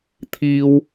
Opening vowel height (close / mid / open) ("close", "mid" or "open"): close